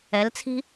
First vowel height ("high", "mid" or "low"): mid